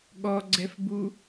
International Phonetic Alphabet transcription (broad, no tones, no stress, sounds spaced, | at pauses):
ɠ ɔ ɡ͡ǀ ɛ f b u